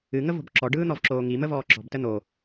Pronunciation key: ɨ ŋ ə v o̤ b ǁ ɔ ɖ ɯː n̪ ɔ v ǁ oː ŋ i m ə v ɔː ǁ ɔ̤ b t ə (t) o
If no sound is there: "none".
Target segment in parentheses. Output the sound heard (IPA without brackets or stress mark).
n̪